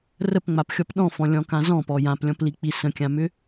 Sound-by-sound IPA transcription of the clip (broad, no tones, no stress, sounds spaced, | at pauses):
r ə p ŋ͡m a p xʲ ɔ p ɗ ɔ̃ f ɔ̃ lʲ ɔ̃ k ã z ɔ̃ p ɔ j ã p lʲ ɔ̃ p l i k͡p i s ə̃ kʲ ã m ʏ